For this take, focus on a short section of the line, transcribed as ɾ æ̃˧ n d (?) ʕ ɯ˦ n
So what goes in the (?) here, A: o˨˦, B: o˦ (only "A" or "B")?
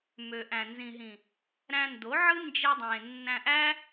A